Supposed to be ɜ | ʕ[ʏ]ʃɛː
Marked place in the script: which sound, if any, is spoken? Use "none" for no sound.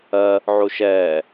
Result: u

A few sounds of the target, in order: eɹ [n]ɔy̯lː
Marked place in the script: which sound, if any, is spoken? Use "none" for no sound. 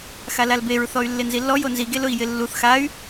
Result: θ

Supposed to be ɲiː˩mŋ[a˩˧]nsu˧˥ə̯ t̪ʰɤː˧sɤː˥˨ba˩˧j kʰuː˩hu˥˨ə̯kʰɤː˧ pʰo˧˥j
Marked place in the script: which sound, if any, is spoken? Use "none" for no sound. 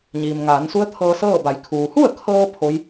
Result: aː˩˧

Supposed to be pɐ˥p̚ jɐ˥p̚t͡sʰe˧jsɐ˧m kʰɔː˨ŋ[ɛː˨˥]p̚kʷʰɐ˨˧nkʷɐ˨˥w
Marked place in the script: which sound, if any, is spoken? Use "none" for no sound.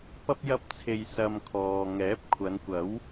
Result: ɛː˨˥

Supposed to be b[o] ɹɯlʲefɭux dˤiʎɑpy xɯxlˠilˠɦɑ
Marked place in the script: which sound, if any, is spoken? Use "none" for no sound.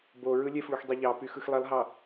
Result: o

